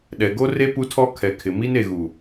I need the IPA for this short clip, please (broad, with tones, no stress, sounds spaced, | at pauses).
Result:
ɗ ɛ˨ ɡ o˦ r e˦ p u˦ tʰ ɔ˦ kʰ ɛ˨ kʰ ɪ˨ m i˦ n e˨ ɣ u˨